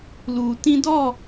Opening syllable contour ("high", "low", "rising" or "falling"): low